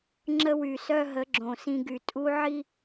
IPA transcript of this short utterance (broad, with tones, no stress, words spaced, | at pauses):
ŋ͡ǁə˦wy˨ sœ˦ɦə˨˦ ɡ͡ǁõ˨sĩ˦ ɡy˨tʼu˦ʕi˦